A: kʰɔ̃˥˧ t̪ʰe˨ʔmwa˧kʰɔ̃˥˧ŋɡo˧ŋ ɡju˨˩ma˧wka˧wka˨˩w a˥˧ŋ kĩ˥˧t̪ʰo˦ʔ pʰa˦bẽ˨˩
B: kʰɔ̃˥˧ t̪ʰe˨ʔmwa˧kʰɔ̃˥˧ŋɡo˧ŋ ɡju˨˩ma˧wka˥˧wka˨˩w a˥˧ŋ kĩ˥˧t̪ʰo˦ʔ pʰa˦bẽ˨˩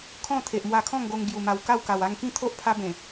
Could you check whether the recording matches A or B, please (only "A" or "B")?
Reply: B